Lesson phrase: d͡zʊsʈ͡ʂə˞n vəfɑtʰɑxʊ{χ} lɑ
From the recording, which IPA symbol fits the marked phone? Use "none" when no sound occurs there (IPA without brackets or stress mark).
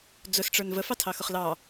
χ